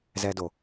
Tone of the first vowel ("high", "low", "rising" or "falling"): high